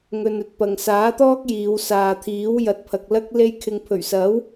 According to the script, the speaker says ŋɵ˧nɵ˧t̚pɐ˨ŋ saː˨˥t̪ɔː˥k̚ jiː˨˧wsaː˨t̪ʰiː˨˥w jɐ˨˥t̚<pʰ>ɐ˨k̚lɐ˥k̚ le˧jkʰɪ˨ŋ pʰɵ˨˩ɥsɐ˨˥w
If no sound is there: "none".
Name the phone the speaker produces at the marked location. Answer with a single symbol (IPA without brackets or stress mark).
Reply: pʰ